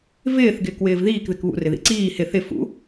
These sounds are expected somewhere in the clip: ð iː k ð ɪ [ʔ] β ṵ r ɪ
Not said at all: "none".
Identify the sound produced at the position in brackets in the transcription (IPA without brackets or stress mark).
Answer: k